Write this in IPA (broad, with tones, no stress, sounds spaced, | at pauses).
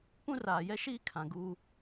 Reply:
p ũ˦ r aː˨ j ɛ˦ ʃ iː˦ kʰ ã˨ ɡ u˦